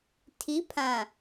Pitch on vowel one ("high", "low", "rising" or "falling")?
rising